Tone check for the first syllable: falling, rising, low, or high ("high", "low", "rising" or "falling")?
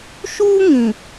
high